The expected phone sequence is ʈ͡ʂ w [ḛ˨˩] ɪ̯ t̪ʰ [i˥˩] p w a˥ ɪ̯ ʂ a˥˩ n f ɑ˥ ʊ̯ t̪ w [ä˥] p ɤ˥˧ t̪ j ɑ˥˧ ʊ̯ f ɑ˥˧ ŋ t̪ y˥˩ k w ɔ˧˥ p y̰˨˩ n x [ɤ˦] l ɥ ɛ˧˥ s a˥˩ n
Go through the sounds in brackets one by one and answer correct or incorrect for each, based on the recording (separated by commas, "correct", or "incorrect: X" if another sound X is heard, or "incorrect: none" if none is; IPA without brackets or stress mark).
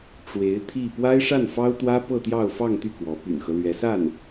incorrect: e˧˥, correct, correct, correct